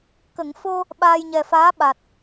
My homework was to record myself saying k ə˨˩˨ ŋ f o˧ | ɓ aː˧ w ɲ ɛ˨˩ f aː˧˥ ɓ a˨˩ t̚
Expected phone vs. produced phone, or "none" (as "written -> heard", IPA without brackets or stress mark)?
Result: w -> j